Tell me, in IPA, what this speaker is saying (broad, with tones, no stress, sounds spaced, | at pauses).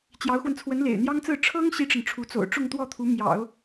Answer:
t͡ɕ j ɑ˧˥ ʊ̯ x w ə˧ n t͡sʰ w ə˧˥ n l ḛ˨˩ ɪ̯ n̪ j ɑ˥ ŋ t͡s ɹ̩˥˩ ʈ͡ʂʰ ɤ˥ ŋ ɕ i˥ ʈ͡ʂ ə˨ n ʈ͡ʂʰ u˧˥ t͡s o̰˨˩ ʊ̯ ʈ͡ʂ ʊ˥˧ ŋ t̪ w ɔ˥˩ t̪ʰ u˧˥ m j ɑ̰˨˩˦ ʊ̯